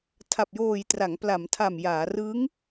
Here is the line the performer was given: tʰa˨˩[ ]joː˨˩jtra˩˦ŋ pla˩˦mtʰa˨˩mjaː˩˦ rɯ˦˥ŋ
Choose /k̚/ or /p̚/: p̚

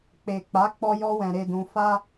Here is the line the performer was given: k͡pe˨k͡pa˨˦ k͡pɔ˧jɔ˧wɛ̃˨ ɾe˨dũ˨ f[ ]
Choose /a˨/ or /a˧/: a˧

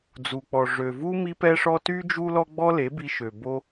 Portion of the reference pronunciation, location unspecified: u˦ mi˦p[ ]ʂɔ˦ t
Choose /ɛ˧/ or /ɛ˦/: ɛ˦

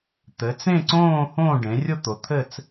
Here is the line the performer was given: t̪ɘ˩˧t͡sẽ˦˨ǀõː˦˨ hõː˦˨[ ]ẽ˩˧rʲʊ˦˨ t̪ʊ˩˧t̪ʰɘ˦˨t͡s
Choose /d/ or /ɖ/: ɖ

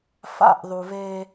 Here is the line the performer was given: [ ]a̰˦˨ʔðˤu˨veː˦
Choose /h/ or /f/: f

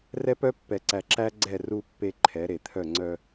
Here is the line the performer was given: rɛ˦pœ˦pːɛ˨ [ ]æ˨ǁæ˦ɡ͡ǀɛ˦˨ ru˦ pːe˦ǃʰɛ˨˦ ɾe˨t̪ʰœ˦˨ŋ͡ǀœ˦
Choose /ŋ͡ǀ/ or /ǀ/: ǀ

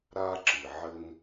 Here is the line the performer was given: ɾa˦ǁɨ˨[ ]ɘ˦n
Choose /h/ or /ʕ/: ʕ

